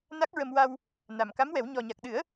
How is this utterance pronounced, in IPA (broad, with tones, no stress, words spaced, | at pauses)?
na˦˥k̚ɹə˧m wa˧w | na˨˩m ka˧˥mwɛ˨˩˦w ɲɔ˨˩ɲa˨˩k̚ɗɨ˨˩˦ə̯